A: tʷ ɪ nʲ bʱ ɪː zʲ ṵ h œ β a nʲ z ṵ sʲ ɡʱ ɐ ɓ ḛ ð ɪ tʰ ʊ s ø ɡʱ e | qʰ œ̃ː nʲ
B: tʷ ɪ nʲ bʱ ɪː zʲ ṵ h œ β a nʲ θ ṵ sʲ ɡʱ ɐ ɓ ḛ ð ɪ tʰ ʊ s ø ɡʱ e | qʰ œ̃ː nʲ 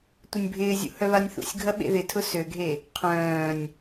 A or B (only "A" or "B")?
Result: B